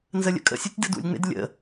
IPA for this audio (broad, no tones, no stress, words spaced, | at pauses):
nzəlʲə̰kʼə̰sʲutʲ dɯdṵlʲŋ͡mḛd lʲə̰